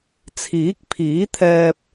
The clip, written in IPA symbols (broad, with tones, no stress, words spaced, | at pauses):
t͡sʰiː˨˥k̚pʰiː˨˥t̪ʰɛː˧p̚